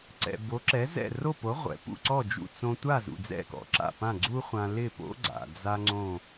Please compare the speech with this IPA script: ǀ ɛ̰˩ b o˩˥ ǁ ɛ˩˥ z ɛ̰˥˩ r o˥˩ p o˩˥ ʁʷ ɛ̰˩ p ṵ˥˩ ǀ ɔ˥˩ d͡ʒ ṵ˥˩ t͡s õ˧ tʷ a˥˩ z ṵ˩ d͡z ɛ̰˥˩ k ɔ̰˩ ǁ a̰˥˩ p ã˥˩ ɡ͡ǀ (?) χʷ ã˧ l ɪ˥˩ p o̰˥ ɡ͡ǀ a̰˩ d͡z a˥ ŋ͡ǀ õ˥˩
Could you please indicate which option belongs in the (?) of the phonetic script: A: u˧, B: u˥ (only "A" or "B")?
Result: B